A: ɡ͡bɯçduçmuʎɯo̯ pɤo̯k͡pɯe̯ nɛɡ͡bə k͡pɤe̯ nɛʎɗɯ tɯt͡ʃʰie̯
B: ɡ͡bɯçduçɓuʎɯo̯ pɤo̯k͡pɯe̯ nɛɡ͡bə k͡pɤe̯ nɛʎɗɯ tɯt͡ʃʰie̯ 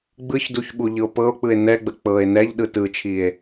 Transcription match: B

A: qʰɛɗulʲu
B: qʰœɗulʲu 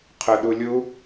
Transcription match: B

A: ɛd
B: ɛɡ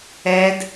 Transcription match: A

